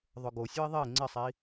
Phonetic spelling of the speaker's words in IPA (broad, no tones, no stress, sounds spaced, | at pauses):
ðˤ ʊ ɡ o sʲ ʊ i̯ ðˤ e ŋ͡ǀ ɪ sˤ i